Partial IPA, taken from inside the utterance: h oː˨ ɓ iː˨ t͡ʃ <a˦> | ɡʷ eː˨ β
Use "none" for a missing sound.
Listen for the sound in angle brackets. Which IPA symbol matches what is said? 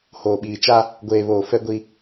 a˦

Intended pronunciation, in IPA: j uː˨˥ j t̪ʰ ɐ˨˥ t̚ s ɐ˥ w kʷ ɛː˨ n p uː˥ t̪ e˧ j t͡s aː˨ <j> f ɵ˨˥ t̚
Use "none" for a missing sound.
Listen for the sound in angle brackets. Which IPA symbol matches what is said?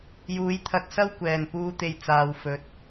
w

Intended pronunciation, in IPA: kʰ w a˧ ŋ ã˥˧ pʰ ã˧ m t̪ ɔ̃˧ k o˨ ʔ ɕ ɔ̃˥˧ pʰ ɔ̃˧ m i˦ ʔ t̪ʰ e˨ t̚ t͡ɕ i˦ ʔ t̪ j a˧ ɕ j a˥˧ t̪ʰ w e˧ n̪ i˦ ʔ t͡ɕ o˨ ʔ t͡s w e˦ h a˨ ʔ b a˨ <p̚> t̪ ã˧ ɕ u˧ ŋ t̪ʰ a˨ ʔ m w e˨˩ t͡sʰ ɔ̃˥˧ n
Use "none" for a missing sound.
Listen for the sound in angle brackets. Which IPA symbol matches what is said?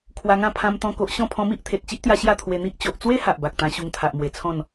k̚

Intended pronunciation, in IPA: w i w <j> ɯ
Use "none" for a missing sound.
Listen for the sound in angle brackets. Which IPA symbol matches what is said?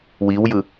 j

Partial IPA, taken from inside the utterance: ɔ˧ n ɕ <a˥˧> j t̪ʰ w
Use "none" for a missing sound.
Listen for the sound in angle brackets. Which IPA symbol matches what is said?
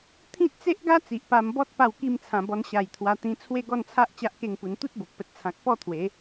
a˨˩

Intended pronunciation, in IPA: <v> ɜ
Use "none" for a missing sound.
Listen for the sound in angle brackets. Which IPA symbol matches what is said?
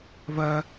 v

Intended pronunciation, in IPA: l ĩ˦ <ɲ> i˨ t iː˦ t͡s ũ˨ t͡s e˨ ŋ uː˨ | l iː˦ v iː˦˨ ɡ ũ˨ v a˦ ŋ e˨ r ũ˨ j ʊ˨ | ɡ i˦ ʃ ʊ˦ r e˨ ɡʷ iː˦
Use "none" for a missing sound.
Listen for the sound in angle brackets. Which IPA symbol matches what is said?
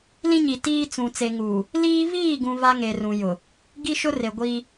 ɲ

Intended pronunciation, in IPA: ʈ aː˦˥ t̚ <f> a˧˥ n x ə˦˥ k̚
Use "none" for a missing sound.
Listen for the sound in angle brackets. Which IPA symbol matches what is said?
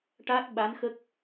ɓ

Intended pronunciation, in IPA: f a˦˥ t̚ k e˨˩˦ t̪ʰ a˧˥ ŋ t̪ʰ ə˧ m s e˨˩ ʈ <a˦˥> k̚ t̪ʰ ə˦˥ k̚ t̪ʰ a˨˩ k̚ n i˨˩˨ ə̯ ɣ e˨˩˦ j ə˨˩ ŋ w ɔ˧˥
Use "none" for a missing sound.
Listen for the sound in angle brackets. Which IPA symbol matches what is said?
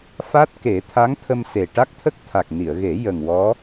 a˦˥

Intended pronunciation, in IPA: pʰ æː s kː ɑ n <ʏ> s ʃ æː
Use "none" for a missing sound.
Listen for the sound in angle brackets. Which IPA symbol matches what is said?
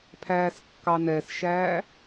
ɛ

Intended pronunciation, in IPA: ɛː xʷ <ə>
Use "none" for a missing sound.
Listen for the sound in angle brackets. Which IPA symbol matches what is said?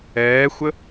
ə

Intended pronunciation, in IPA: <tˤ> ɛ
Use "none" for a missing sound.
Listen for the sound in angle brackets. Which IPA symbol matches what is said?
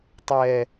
tˤ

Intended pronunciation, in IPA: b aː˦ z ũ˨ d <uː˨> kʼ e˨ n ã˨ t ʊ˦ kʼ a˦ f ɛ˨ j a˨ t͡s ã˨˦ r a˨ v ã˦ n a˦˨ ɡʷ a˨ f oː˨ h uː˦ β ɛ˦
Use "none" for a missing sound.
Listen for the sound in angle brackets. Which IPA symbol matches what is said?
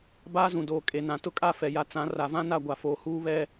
oː˨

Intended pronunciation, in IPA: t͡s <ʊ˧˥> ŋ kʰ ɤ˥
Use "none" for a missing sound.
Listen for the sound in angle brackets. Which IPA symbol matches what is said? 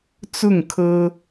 ʊ˥˩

